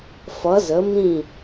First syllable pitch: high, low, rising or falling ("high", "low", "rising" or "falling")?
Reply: rising